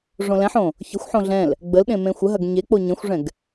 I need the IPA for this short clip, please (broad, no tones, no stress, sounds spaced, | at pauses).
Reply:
ʐ õ l ɛ̃ ħ õ | ç ə xʷ ħ õ ɮ ɛ̃ l | ɡ͡b ə l ɗ ẽ m ẽ xʷ ə ɦ ɐ ɡ ɲ e k͡p o ɲ ə̃ xʷ ʐ ɛ̃ ɡ